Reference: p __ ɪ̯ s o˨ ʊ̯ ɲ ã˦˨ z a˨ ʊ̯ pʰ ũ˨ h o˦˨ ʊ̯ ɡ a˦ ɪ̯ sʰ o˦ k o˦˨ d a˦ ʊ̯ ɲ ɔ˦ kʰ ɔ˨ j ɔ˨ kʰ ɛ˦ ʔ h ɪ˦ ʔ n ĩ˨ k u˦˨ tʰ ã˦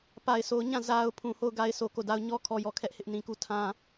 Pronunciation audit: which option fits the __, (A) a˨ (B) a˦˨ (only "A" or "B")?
A